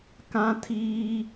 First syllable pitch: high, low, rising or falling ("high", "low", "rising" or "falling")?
high